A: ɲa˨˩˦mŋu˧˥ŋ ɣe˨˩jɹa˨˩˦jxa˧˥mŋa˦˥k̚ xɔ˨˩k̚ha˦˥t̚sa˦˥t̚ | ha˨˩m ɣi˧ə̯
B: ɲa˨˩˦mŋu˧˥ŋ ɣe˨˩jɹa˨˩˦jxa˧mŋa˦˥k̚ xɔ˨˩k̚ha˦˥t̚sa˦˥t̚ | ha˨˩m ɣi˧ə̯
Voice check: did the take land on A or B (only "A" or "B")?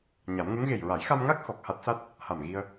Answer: B